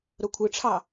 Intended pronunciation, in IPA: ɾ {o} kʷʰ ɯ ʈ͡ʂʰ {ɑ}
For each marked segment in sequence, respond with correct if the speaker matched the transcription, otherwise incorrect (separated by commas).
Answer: correct, correct